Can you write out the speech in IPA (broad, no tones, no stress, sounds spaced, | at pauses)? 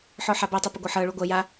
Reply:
ħ ɔ ħ a b ɤ tˤ ɐ p ɪ ɡʷ ɤ ħ ɤ ɭ u ɡʷ ɐ j a